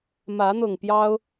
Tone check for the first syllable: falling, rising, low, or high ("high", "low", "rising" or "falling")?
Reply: rising